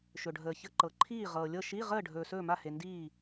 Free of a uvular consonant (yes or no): no